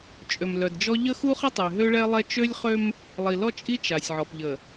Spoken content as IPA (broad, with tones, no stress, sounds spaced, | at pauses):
t͡ʃʼ ø˨ m l œ˨ d d͡ʒ ɔ˦ ʎ ə˦ x u˦ χ ə˦ tˤ e˨ ɦ ø˦ ɭ ɛ˦ lˠ ɛ˦ t͡ʃ ø˦ lʲ χ ø˦ m | lˠ i˨ l ɔ˦ t͡ʃʼ i˦ t͡ʃ a˨ sʲ ʕ ɔ˨ p ʎ ə˨